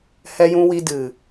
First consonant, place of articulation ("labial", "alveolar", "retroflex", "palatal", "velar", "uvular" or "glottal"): glottal